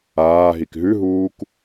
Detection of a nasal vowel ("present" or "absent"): absent